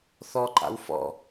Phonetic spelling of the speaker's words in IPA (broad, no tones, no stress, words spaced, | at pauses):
θɔǃa̰w fɔ̰